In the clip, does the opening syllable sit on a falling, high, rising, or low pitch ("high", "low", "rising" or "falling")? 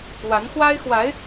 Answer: rising